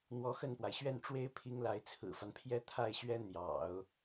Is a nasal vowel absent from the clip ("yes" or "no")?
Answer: yes